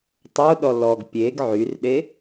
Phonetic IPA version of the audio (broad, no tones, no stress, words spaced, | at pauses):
tˤoɗɔ lɔɡ pʲeɡ ʕyrɗe